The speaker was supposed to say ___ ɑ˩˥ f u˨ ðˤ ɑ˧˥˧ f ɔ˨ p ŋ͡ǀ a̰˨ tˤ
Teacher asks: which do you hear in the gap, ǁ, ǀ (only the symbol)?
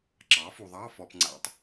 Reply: ǁ